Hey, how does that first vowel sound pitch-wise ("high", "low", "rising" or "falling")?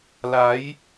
rising